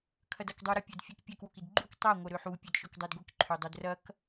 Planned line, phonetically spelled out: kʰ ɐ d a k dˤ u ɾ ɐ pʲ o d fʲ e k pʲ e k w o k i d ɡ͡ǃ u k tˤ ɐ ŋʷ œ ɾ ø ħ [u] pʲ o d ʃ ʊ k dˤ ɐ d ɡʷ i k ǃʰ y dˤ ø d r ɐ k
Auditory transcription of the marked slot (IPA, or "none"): u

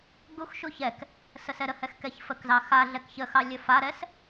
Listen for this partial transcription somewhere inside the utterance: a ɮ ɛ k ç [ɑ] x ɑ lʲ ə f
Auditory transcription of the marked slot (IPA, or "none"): ə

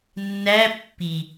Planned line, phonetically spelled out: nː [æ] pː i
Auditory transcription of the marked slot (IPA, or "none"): æ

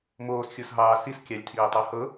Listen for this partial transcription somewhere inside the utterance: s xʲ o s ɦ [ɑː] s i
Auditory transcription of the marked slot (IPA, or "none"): ɑː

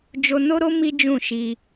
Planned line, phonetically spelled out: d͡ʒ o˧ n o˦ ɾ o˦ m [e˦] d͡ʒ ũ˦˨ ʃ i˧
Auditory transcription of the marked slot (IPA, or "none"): i˦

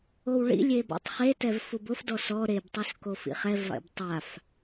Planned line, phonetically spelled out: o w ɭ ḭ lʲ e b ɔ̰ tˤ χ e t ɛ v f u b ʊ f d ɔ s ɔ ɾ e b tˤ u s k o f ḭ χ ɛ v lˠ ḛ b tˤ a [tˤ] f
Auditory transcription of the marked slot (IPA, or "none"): none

